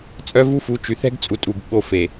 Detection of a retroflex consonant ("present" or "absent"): absent